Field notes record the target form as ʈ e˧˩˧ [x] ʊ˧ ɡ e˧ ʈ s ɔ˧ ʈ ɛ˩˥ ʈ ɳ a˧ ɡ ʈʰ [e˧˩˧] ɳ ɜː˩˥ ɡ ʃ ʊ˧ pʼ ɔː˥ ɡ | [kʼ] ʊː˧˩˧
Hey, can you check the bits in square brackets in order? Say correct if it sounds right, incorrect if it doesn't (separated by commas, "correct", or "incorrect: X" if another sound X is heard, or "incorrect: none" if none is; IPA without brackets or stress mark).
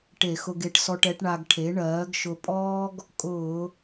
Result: correct, incorrect: e˩˥, correct